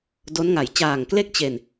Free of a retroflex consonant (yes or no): yes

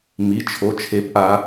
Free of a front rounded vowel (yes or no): yes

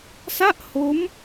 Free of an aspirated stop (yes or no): yes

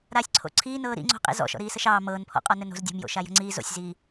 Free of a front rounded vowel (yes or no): yes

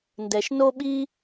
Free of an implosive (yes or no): no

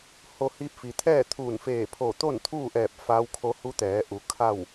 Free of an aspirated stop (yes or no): no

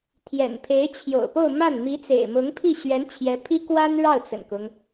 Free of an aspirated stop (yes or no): no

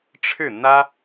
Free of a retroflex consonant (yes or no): no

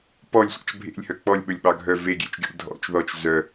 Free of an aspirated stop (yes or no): yes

